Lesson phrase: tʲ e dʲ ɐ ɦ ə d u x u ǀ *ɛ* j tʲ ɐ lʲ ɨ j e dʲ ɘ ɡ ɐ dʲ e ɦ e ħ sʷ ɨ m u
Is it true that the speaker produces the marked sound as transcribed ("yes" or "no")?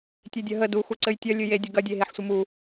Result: no